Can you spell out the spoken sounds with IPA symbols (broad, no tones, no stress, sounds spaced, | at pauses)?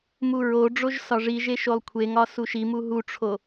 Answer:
m u ɹ o ɖ͡ʐ o ʒ s ɒ ʐ i ʒ e ʃ o lˠ kʷʰ e ŋ ɒ s u ʃ i m u ɦ u ʈ͡ʂʰ o